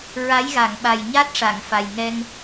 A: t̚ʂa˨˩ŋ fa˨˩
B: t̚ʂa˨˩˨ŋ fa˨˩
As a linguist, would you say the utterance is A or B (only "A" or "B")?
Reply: B